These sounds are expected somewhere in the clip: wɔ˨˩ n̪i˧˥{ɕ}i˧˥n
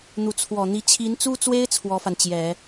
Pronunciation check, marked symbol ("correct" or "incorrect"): incorrect